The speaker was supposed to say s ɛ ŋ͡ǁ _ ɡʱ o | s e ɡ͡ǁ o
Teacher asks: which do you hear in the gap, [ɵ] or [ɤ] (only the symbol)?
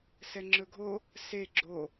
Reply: ɵ